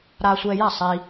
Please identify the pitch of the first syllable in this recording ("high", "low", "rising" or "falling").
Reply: low